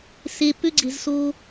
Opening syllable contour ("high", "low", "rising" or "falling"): low